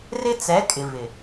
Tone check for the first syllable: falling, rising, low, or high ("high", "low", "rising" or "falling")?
high